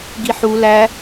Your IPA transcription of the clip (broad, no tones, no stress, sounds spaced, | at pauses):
ɡ i ħ u l æ